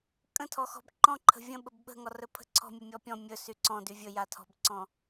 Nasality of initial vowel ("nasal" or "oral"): nasal